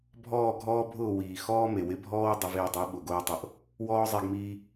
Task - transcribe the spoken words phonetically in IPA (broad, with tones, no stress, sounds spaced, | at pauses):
bʱ ɔː˦˨ ɡʱ ɔː˦ bʱ ʊː˦˨ w iː˨ x ɔː˦ m e˨ w ɪ˧ bʱ ɔː˦ w dˤ ʊ˧ v ɪː˧ dˤ i˨˦ ɓ ʊ˨ ɡ oː˧ tˤ ʊ˨˦ ʔ | w ɔː˦ zˤ e˧ ɡ m iː˧